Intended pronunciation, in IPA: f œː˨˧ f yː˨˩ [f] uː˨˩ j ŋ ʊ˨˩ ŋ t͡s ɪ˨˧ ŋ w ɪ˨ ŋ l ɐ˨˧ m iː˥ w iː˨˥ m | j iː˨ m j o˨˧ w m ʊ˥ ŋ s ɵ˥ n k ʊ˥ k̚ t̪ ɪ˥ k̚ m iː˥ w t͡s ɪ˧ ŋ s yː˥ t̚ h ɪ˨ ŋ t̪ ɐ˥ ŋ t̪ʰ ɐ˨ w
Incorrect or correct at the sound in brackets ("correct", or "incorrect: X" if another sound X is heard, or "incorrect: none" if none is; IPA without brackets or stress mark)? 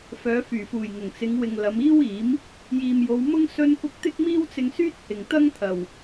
correct